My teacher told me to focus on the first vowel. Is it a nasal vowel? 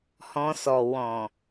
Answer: yes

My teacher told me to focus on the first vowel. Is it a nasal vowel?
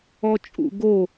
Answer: no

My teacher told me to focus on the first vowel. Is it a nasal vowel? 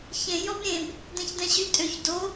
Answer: yes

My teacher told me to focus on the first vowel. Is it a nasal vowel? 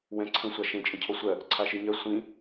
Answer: yes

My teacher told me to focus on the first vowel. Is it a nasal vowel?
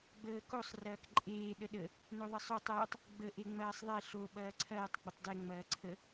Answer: no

